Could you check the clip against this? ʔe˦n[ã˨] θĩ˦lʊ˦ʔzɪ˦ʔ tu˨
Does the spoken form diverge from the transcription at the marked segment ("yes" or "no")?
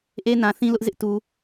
no